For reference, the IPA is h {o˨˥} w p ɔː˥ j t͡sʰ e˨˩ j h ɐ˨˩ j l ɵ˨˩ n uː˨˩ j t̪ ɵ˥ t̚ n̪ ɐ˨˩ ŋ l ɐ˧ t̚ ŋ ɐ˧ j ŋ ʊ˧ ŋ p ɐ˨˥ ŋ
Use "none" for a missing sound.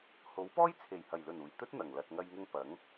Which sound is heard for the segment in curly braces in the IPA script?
o˨˥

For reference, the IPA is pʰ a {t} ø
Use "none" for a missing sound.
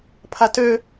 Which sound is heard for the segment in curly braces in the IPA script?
t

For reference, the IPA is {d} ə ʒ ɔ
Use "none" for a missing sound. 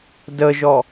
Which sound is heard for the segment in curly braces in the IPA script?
d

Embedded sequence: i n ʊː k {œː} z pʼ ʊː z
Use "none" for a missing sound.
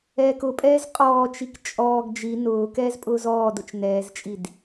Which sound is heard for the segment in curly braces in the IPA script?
ɛː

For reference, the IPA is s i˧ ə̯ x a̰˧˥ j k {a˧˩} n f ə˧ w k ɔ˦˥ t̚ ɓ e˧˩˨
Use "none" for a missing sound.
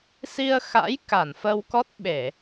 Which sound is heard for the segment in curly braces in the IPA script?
a˧˩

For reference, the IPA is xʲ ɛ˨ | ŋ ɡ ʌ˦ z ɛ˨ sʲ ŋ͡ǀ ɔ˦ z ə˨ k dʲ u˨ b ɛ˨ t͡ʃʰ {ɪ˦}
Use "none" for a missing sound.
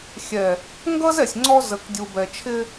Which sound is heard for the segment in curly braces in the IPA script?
ɪ˦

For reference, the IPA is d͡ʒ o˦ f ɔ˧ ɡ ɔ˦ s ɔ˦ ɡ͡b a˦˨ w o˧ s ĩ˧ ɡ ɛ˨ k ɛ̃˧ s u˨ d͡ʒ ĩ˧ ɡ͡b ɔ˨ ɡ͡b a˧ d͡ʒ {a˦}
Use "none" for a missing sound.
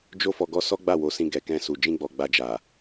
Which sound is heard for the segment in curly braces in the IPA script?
a˨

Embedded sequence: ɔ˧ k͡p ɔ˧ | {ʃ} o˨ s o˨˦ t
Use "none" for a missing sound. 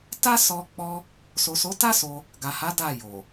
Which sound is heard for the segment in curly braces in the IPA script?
s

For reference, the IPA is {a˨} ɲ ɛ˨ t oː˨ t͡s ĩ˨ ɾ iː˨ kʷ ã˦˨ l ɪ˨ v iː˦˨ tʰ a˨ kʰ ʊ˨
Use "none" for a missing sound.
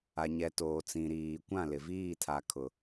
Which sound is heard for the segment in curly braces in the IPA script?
a˨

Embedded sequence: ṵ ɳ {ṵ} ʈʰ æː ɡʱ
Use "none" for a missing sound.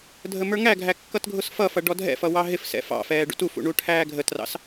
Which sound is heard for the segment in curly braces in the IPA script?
u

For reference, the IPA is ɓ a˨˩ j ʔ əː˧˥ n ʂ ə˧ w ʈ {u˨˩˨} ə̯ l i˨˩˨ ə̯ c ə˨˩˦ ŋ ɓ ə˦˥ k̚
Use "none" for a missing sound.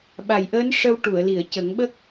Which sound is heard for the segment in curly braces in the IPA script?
u˨˩˨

